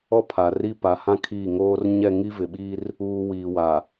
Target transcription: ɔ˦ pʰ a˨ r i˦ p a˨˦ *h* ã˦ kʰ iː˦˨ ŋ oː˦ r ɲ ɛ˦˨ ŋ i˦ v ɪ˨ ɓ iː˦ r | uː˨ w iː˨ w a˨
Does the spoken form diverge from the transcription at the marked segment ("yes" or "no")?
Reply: no